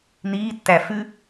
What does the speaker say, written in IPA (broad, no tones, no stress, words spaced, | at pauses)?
niːtːæ fʉ